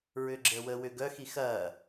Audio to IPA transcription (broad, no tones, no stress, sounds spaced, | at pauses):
ɹ ʏː ɡ͡ǁ əː w əː w ʏ ɡ œ x i x ɐː